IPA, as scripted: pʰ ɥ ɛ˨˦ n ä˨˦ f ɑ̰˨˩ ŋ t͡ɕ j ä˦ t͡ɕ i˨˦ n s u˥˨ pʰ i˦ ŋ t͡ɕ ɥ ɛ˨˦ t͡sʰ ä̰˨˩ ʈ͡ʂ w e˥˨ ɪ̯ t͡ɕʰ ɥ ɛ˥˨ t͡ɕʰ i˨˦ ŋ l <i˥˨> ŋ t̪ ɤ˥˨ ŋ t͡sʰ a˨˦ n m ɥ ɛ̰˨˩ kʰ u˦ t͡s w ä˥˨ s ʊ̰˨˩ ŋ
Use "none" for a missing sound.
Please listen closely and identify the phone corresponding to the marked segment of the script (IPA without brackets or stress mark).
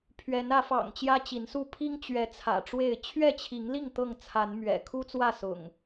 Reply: i˥˨